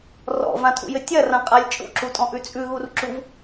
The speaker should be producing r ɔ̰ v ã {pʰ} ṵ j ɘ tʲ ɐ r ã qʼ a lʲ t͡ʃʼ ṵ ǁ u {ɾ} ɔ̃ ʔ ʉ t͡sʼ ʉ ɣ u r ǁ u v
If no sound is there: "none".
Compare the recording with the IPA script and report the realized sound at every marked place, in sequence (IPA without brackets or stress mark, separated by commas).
tʰ, tʼ